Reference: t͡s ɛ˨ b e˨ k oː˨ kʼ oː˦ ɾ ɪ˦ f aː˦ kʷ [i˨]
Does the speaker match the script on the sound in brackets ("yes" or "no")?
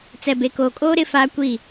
no